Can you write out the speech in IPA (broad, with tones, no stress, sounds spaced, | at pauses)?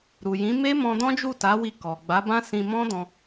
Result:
ɾ u˨ j ĩ˨˦ m e˦ m ɔ̃˧ d ɔ̃˦ d͡ʒ u˦˨ t a˨˦ w i˧ k ɔ˨ ɡ͡b a˨˦ b ã˦ s ĩ˧ m ɔ̃˦ d ɔ̃˧